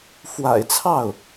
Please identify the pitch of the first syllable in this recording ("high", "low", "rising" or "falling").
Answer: low